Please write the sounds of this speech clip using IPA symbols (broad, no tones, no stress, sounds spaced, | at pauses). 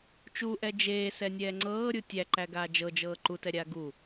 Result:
t͡ʃ u ʔ ɛ d͡ʒ eː s ɛ nʲ ɛː ŋ͡ǀ ɤː ɾʲ u tʲ æ ǃ æ ɡ aː d͡ʒ ɤ d͡ʒ ɤː ǃ u t ɛ ɾʲ aː ɡ u